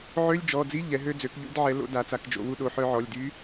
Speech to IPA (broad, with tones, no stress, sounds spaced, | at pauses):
ʕ ø˧˥˧ lʲ d͡ʒ ɔ˩˧˩ d͡z i˧˥˧ ʎ ɛ˩˧ ɦ ø˧ d͡z ø˩˧ k ʎ ṵ˧ d ʕ ɛ˩˧ l o̰˩˧ d a˩˧ t͡s a˩˧ k d͡ʒ o̰˩˧ w u˧ ɗ o˩˧˩ ħ œ˧ ʕ ɔ˩˧˩ lʲ d y˧˥